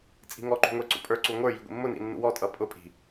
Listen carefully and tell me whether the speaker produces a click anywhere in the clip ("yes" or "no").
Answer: yes